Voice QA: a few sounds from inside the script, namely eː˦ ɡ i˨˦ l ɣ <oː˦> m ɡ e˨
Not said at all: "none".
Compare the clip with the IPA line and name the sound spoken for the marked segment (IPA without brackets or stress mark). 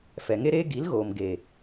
oː˨